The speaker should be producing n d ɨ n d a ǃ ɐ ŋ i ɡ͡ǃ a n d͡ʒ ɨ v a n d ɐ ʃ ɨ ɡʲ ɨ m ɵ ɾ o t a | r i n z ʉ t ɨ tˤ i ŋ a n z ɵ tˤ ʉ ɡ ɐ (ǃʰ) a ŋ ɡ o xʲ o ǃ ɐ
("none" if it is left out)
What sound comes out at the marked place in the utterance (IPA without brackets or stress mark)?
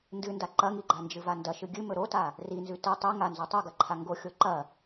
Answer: ǃʰ